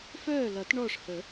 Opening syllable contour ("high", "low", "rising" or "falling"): falling